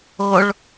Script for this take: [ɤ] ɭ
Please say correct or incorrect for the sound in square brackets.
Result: correct